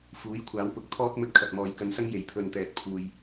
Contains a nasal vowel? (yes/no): no